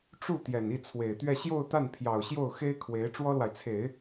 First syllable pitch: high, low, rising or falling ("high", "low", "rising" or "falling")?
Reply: falling